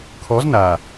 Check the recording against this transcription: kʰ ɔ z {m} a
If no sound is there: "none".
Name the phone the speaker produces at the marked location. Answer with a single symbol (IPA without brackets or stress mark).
n